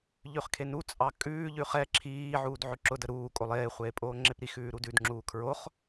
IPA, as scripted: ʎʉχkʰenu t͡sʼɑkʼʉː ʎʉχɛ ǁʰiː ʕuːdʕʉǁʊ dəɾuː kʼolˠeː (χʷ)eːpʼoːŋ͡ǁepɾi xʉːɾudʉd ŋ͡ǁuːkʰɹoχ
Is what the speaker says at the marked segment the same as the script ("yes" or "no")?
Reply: yes